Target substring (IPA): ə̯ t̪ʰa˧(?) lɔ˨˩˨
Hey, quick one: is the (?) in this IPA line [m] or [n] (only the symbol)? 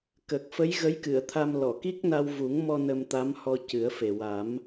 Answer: m